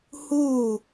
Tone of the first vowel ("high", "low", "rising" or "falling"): falling